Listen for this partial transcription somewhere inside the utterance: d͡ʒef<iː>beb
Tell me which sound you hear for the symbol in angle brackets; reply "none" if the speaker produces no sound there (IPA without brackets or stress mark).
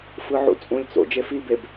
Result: i